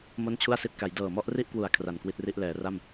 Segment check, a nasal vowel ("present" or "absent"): absent